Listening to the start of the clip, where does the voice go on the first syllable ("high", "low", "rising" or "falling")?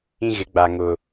high